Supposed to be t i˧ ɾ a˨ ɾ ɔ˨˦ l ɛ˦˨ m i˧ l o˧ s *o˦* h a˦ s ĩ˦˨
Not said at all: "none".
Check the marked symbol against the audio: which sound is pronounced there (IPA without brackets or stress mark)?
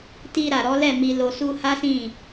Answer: u˦